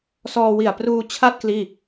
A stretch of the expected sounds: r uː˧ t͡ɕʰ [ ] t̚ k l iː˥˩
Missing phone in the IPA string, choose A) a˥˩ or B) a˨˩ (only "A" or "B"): A